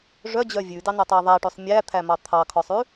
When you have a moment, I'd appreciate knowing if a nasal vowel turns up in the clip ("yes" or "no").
no